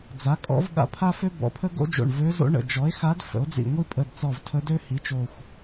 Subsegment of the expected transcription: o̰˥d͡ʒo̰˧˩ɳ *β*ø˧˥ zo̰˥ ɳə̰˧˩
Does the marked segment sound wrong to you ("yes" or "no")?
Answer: yes